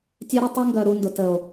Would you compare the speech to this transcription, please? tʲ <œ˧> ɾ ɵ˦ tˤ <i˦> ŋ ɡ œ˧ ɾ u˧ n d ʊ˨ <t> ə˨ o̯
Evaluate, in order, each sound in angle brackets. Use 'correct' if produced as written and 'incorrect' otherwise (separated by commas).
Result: incorrect, correct, correct